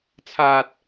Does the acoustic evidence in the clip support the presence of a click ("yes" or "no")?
no